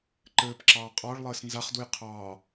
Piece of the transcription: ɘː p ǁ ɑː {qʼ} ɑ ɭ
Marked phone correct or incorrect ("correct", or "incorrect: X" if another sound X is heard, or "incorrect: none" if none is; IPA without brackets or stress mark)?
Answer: correct